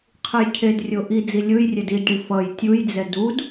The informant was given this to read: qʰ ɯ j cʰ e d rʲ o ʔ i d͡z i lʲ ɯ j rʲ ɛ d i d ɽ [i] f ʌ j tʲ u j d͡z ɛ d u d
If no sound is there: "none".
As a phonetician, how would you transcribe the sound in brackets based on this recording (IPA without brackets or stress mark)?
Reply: i